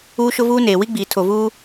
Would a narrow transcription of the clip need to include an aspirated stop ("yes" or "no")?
yes